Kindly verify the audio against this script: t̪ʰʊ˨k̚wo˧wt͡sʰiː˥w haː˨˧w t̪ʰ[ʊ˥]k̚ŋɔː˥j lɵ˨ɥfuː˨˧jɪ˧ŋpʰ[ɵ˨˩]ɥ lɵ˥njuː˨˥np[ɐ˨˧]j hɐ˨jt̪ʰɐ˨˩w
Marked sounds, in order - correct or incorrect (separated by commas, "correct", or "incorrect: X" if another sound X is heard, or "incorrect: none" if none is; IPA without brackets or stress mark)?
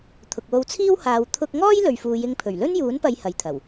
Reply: incorrect: ʊ˧, correct, correct